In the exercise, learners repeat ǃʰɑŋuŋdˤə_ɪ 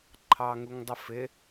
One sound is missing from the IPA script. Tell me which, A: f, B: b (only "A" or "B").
A